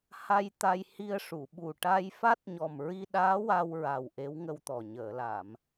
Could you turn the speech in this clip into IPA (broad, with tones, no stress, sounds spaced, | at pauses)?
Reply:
h a˧ j t̪ a˧ j h i˧ ə̯ ʂ u˨˩˨ ɓ u˨˩ ʈ a˧ j f a˦˥ t̚ ɲ ɔ˨˩ m ɹ i˧ ɗ aː˧˥ w a˧ w ɹ a˨˩ w ʔ e˧˥ w ŋ ə˧ w t̪ ɔ˨˩ ɲ əː˨˩˨ l a˨˩˨ m